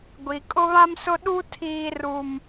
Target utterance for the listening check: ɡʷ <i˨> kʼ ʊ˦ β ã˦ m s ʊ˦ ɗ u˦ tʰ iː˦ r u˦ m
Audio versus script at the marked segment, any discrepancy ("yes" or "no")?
no